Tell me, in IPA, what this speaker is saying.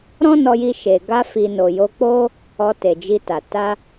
ɾ ɔ̃˦ n ɔ˧ j i˧ ʃ e˨ ɡ a˧ f i˨ n o˨ j o˧ k͡p o˦ | ɔ˧ t e˨ d͡ʒ i˧ t a˨ t a˧

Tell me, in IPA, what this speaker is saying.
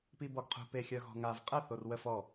p i b ɔ ɡ qʰ ṳ p e xʲ œ ɣ ɔ̤ ŋ a v qʼ ə θ o r w ə f ɔ

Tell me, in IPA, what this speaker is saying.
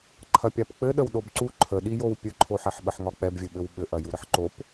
ǃʰ ɐ pʲ a p k͡p ɘ ɗ ə w ɗ o b ǀ u ǃʰ ə ɗ i j o w pʲ ɘ ǃʰ o ħ ɛ ħ ɓ ə ħ ŋ ɒ k͡p ɛ b vʲ ɘ ɓ ɘ w ɓ ɘ ʔ ɐ j u ɾ ə ħ ǃ o p

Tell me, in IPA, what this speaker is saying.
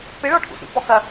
p ɪ ɭ ɔ ʈʰ ṵ s ḭ p ɔ x ɐ

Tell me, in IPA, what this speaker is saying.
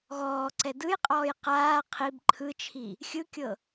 ɣ ɔː ǀ ɛ d ɯ j qʼ ɔː j q aː qʰ i b ǃʰ ɯ t͡ʃʰ i | xʲ ɯ kʲ ɤ

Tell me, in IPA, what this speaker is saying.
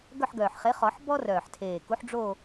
ɡ œ˦˨ ħ ɡ œː˨˩ ħ χ e˨˥ χ ɔ˨˩˦ ħ b ɔ˥ r œː˨˩ ħ tʰ eː˨˩ k u˨˥ ħ ɖ͡ʐ o˦˨

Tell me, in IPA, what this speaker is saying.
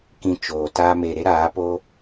k ĩ˧ t͡ʃ oː˨ t aː˦ m e˧ ɾ e˦ ɾ aː˨˦ p o˦

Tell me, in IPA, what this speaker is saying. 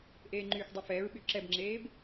ʔ eː ŋ͡ǃ yː x dˤ e f ɛː ɹ ɓ y ǁ ɛ b ŋ͡ǁ eː b

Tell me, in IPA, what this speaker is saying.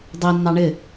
dˤ i nː ɑ ɳ ɪ

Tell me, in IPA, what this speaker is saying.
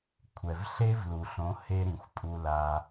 kʷʰ ɛ˨ v ɬ e˦ v l u˨ ɬ õ˨˦ h e˧ ɾ ĩ˨ xʷ pʼ u˧ l a˧

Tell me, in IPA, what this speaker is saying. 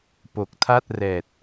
p o˨˩ k̚ tʰ a˥˩ t̚ r ɛː˨˩ t̚

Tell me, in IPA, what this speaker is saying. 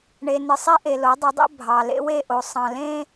ɳ e˨ n ɨ˨ sˤ i˦ ʔ e˨ l o˨˦ dˤ ə˨˦ dˤ ḛ˦ bʱ ɑ˨ l ḛ˦ w e˦˨ ʔ o˨ sˤ ɑ̃˨ l ẽ˦

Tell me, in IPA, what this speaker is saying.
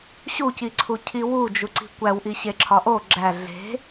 ɕ u c i ǀʰ u cʰ i w u d͡ʒ u ǀ i̤ kʷ æ w ʔ i ɕ e ǁʰ ɒ ʔ o ɡ͡ǁ æ ɮ e̤

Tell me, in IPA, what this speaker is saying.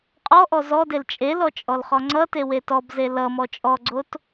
qʼ ɔ ʔ ɔ z ɔ d e l t͡ʃʼ e l ɔ t͡ʃʼ ɔ l χ ɔ ŋ͡ǀ ʌ t e w e t ɔ b z e l ʌ m ɔ t͡ʃʼ ɔ ɡ͡ǀ o t

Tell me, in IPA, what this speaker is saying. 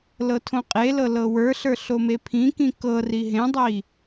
l ɤ tʰ õ qʼ e l ɤ l ɤ w ə˞ ɬ ə˞ ɬ o m e pʰ ĩ k ĩ k ɤ r i ɦ ẽ dˤ i

